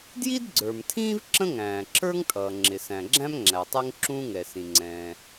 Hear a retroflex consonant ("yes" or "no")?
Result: no